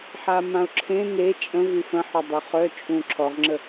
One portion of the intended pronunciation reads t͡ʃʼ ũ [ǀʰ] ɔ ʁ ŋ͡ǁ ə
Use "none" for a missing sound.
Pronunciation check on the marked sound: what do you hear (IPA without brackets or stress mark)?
ǁʰ